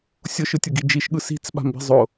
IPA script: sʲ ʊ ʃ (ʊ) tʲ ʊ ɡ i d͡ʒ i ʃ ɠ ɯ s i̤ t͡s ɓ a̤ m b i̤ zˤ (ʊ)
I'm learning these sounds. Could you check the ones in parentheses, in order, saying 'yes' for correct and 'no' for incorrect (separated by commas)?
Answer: no, yes